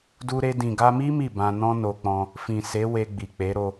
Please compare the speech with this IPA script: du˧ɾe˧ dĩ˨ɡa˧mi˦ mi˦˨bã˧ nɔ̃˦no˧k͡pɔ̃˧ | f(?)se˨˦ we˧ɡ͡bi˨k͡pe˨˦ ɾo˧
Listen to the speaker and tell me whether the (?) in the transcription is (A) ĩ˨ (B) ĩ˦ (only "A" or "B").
A